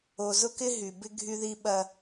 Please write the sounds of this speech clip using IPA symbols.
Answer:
o˨ z ʊ˦ k ɪ˦ ɦ y˨ b ɪ˦ ɡʱ y˦ ð i˦ ɓ ɐ˦

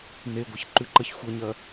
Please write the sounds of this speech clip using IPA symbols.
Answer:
n e ɡʷ ə ç ǃ ʉ ǃ ʌ ç xʷ ʌ ɲ ɐ

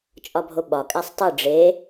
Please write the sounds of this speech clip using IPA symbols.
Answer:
t͡ʃʼ ɒ bʱ o ɓ ɒ kʼ æ sˤ tˤ i ɖ͡ʐ e

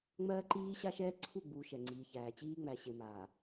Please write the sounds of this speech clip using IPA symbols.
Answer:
ŋ͡m ɜː˦ ǃ iː˦ ɕ a˦ ʃ ɛː˦ ǀʰ u˦˨ ɡ͡b u˨ ʃ ɛ˨ ŋ͡ǀ iː˨ ç æː˨ t͡ɕ iː˦ ŋ͡m æ˨ ɕ e˨ m a˨

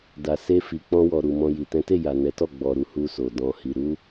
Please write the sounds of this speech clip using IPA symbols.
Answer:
d a˨ s e˧ f i˨ k͡p ɔ̃˧ w ɔ˨ ɾ u˨ m ɔ̃˧ j i˨ t ɛ̃˨˦ t e˦˨ j a˨ n ɛ˨˦ t ɔ˦˨ ɡ͡b ɔ˨ ɾ u˧ h u˧ s o˨ d ɔ̃˧ h i˧ ɾ u˦

